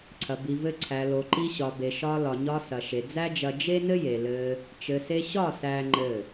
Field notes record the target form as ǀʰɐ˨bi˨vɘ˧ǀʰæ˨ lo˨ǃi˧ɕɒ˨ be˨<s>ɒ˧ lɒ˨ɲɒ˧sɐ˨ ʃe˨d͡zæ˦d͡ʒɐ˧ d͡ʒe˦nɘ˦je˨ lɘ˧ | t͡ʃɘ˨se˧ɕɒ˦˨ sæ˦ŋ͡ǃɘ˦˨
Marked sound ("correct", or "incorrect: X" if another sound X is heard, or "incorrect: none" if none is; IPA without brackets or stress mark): incorrect: ʃ